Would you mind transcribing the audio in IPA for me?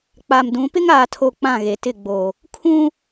k͡p a˨ m d ũ˨˦ p ɪ˦ ŋ aː˨ tʰ o˨ k͡p ã˦˨ ɣ e˨ t ɪ˦˨ ɡ͡b o˨ | kʰ ũ˦

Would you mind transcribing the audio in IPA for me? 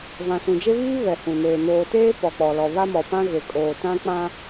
v ã˨ s ũ˨ d͡ʒ e˦ β iː˦ β ɛ˨ h ũ˨ n eː˨ n oː˨ t eː˦ p ɔ˨ k͡p ɔ˨ l ɔ˨ β a˦ m ɔ˨ p ã˦ ɣ e˨ kʼ oː˨ t ã˦ k͡p ã˦

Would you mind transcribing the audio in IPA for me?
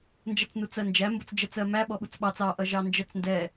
n d͡ʒ ʌ t͡s n u t͡s ɜ n d͡ʒ æ m b ʊ t͡s d͡ʒ ɜ t͡s ɜ m æ ɓ ɔ ɓ u t͡s ɓ ɑ t͡s ɑ ʔ ʌ ʒ ɑ n d͡ʒ ɜ t͡s n d ɛ

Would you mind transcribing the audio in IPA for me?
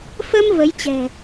f ə˧ m v ə˨˦ j t͡ɕ ɛ̤˨˩

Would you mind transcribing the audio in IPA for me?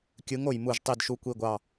kʲ ɯ˨˥ ŋ o˧˩ j m u˧˩ ʒ tˤ i˧˩ d ʃ u˨˥ kʷ i˧˩ ɡʷ ɑ˧˩

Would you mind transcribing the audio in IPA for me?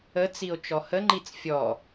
ə t͡s i o̯ t͡ʃ ɔ h ə ŋ͡ǃ i t͡s fʲ ɔ

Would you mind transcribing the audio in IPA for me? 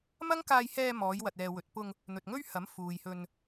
m ɐ˥ ŋ k aː˧ j h ɛː˧ m ɔː˨˧ j w ɐ˨ t̚ ɛː˨ w ɵ˨ t̚ p ʊ˧ ŋ | n̪ ɵ˨ t̚ ŋ ɵ˥ ɥ h ɐ˨˥ m f uː˨ j h ɵ˧ n

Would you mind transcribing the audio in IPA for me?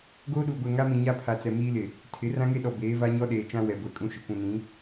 ɡ oː˦ ɗ uː˨ ɡʷ ɛ˨ ŋ a˦ m ĩ˨ ɲ a˦ pʰ a˨ t͡s ɛ˨ m iː˦ l ɪ˨ | tʰ ɪ˨˦ r ã˦ ŋ e˦ ɗ ɔ˨ b eː˨˦ v a˦ ɲ ɔ˦ ɗ eː˨ t͡ʃ ã˦ w ɛ˨ ɡʷ ɛ˨ kʼ ũ˦ ʃ ɪ˨ kʷ ũ˨ n ĩ˨˦

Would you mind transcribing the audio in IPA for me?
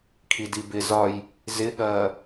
kʰ i d i b ɪ z ɒ j | z ɪ ɠ ɐː

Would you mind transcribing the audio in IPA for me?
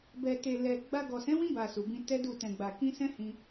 b ɛ˨ t e˨ l ɛ˨ ɡ͡b a˧ ɡ ɔ˨ s ɛ̃˨˦ w ĩ˧ b a˨ s u˨ b ĩ˧ t ɛ˦ d u˦˨ t ɛ̃˨ ɡ͡b a˨ k ĩ˧ s ɛ̃˦ h ĩ˧

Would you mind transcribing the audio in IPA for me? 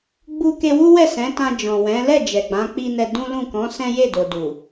ɡ͡b u˦ k e˧ w u˦ w ɛ˦˨ s ɛ̃˨˦ t ã˧ d͡ʒ ɔ̃˨ w ɛ̃˨˦ l ɛ˦˨ d͡ʒ ɛ˨ ɡ͡b ã˨˦ k͡p i˦ n ɛ˧ d ũ˦ l ũ˦˨ k ɔ̃˨˦ s ɛ̃˦ j e˦˨ d o˨ d u˨

